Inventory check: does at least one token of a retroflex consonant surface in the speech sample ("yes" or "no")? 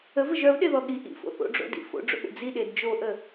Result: yes